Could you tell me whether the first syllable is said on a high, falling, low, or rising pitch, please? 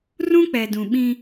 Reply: high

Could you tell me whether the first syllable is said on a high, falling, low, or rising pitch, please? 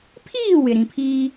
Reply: falling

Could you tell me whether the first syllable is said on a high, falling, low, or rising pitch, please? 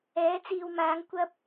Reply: rising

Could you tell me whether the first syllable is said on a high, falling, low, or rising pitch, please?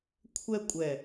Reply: high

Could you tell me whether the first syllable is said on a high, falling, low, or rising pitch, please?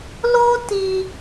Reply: high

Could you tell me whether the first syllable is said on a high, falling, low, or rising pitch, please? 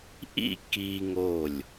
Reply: falling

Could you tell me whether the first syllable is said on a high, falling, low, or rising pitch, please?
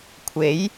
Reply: rising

